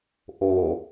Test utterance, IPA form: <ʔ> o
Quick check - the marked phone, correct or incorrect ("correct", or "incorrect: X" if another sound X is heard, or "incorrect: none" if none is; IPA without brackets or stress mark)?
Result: correct